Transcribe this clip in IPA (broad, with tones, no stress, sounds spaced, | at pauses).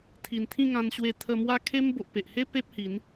t̪ʰ i˨˩ n t̪ʰ ĩ˥˧ ŋ ã˧ n ɕ w e˧ t̪ʰ ə˧ m w a˦ kʰ e˦ m b o˨ ʔ p e˨ ʔ h e˦ p e˦ p̚ h i˨˦ n